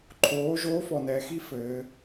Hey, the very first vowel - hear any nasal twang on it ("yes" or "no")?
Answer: no